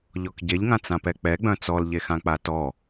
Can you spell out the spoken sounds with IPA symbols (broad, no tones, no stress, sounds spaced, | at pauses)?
ʎ ɔ k ɟ e ʎ ŋ ã t͡s ã p ɛ k͡p ɛ ɡ͡b œ̃ t͡s ɔ l ʎ e x ã k͡p a t ɔ